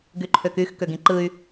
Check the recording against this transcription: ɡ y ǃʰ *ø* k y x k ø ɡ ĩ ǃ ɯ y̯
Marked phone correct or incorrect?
correct